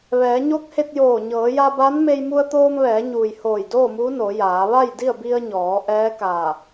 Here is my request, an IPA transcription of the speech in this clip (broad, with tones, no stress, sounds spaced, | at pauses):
ʋ ɛː˩˧ ɲ o˧˥ k̚ h e˧ t̚ j oː˧˩ ɲ ɤː˩˧ j a˧ b a˧˥ n m e˧ j m u˧ ə̯ t̪ oː˧ m ʋ ɛː˩˧ ɲ uː˩ j h oː˧˩ j d oː˥˨ m uː˧˥ n o˩˧ j aː˩˧ ʋ a˥˨ j d i˥˨ ə̯ b i˧ ə̯ ɲ ɔː˩˧ ʔ ɛː˧˥ k aː˧˩